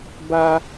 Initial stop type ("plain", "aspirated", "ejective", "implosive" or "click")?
plain